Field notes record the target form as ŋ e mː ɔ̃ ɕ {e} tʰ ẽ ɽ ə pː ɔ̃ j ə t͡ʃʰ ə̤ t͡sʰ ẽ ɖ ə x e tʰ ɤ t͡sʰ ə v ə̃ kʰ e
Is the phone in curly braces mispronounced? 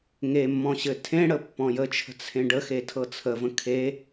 yes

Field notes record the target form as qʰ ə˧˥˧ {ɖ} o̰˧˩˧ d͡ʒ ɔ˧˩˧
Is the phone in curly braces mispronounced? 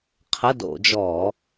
yes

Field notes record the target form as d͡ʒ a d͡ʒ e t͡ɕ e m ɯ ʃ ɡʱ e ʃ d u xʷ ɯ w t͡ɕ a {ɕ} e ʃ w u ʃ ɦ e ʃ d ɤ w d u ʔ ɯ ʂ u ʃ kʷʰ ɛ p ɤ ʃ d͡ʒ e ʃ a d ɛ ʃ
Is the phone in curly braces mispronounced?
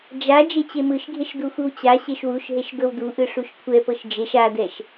no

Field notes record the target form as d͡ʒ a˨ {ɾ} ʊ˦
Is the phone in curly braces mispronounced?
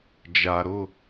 no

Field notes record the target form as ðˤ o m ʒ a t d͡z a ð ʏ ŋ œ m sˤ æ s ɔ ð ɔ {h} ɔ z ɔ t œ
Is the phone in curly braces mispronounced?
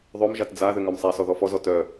yes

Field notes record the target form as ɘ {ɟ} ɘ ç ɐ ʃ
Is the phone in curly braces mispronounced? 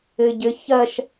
no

